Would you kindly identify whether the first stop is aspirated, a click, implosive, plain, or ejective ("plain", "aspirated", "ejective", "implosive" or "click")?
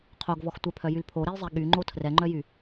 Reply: aspirated